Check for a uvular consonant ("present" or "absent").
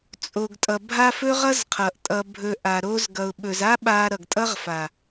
present